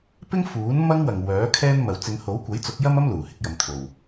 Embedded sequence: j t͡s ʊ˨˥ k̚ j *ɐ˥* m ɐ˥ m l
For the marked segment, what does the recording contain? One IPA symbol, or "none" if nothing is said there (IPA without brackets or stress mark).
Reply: ɐ˥